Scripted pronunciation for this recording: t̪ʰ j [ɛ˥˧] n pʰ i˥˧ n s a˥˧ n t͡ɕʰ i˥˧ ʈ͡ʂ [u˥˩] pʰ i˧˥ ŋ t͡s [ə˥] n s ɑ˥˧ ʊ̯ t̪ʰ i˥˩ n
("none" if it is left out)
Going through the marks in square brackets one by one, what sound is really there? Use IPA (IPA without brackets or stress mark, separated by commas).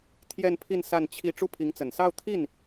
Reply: ɛ˥˧, u˥˩, ə˨˩